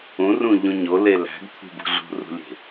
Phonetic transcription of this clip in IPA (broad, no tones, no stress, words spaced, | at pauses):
ũrũʎũ ɲole læ̤ɡt̪ʰṳbṳ ɮṳrṳlʲe̤